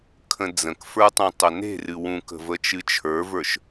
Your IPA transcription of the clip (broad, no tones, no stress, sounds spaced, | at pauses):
kʰ ə̃ d͡z ə̃ k f ə˞ tˤ ũ tˤ ə n e̤ r ɨ w ũ k ə̤ v ə t͡ʃ ɨ t͡ʃʰ ə˞ v ə˞ ʃ